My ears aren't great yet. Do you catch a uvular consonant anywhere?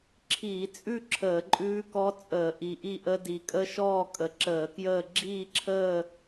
no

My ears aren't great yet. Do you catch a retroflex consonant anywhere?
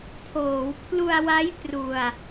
no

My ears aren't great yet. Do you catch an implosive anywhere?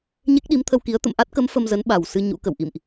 yes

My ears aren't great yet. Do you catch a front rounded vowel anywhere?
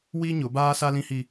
no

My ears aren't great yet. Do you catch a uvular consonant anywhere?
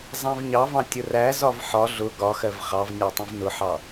yes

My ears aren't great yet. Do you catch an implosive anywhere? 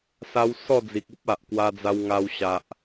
no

